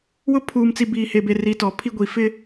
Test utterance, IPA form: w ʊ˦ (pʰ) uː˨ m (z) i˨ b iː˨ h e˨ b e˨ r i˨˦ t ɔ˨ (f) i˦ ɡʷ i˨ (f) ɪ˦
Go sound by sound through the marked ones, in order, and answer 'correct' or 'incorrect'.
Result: correct, incorrect: t͡s, incorrect: pʰ, correct

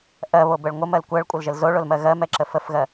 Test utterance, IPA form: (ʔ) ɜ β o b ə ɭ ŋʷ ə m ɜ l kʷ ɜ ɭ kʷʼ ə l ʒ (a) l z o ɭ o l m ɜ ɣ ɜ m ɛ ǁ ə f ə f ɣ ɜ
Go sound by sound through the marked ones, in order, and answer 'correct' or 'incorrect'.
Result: correct, incorrect: ə

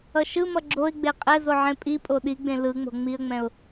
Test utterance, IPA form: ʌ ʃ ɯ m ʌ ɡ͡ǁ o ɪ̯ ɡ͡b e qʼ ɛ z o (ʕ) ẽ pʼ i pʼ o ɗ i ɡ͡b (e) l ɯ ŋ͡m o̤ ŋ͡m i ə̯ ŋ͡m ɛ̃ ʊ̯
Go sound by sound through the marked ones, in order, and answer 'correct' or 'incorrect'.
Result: correct, incorrect: ẽ

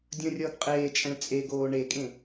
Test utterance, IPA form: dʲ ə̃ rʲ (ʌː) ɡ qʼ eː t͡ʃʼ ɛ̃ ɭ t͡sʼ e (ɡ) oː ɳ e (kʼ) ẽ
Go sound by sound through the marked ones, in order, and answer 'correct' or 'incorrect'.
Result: correct, correct, correct

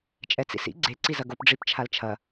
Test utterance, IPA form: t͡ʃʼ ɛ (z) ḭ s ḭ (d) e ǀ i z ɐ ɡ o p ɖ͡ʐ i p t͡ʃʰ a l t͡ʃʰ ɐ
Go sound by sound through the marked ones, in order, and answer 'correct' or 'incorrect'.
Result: incorrect: t͡s, incorrect: ɡ͡ǀ

